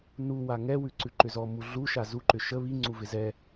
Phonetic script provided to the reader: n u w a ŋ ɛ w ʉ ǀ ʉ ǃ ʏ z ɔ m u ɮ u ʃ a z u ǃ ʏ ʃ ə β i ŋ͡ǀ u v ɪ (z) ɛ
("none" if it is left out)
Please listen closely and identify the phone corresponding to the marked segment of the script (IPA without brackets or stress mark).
z